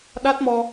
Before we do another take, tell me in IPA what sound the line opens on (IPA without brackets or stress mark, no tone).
ɗ